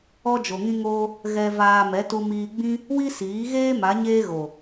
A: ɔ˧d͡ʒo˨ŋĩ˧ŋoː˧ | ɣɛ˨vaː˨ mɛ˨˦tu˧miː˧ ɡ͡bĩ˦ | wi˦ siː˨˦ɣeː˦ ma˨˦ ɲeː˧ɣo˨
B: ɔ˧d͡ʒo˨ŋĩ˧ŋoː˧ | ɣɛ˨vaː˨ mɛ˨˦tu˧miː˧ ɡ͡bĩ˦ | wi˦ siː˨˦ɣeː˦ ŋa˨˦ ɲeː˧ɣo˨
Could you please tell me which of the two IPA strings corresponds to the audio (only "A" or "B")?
A